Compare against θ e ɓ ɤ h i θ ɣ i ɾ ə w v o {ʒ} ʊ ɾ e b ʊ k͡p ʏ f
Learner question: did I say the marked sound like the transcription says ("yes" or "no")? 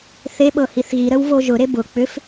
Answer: yes